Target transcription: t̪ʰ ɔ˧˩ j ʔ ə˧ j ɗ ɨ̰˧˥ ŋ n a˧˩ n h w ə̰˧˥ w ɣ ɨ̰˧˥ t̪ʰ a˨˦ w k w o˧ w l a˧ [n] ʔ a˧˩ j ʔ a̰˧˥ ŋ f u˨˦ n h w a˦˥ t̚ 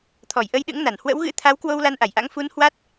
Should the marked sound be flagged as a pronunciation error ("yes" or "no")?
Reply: no